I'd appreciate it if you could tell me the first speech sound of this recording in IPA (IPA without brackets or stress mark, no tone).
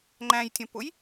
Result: ŋ͡ǃ